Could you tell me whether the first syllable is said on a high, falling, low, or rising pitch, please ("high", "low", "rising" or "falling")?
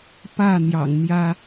falling